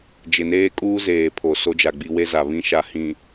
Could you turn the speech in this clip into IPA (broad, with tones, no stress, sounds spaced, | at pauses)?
d͡ʒ ɪ˨ n eː˦ kʼ uː˦ z eː˨ pʰ o˨ s o˦ d͡ʒ a˨ ɡ͡b i˦ w e˦ z a˨ β ĩ˦ ʃ a˨ h ĩ˨